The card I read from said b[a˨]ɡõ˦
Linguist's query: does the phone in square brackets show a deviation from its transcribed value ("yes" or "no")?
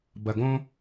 yes